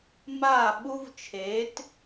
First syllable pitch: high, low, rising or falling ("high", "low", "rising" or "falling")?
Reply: falling